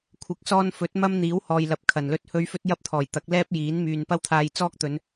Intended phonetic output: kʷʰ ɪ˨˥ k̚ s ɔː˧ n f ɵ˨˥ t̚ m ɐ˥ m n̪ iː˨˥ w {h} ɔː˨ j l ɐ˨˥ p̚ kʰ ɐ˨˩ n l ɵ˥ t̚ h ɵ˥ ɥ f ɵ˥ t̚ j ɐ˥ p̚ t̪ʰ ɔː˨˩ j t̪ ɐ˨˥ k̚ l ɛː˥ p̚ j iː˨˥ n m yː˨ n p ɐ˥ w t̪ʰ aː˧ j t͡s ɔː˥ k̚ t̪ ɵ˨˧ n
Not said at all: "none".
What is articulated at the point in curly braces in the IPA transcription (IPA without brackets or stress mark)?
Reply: h